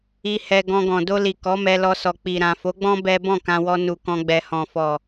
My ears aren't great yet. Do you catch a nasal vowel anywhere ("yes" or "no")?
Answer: yes